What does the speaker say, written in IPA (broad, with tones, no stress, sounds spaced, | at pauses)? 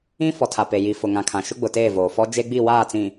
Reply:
ĩ˦ f ɔ˨ tʰ a˨ p e˨ j i˨ f ʊ˨ ŋ ã˨ kʰ ã˨ ʃ ʊ˦ ɡ͡b ʊ˨ t eː˦˨ v oː˨ f ɔ˦ d͡ʒ e˦ ɡ͡b i˦˨ w aː˦˨ t͡s ĩ˨